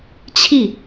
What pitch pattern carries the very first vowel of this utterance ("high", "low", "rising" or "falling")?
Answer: falling